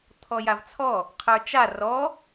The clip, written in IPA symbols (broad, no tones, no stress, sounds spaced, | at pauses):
t̪ʰ ɔ j a v t͡sʰ ɔ | qʰ ə˞ t͡ʃ a r ɔ